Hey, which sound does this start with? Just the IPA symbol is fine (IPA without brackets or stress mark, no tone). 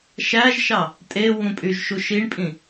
ʃ